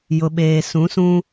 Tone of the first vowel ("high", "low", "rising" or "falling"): low